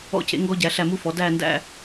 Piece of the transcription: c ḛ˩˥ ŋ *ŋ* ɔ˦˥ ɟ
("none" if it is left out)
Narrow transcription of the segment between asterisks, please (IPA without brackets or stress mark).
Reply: ɡ